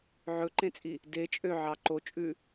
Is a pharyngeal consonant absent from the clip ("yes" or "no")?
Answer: no